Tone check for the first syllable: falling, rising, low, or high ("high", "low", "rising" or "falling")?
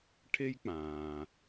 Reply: high